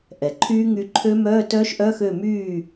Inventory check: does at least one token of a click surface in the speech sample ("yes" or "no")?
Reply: yes